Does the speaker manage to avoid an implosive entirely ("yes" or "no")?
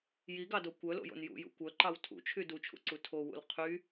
yes